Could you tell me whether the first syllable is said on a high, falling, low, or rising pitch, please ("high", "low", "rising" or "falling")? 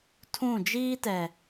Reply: falling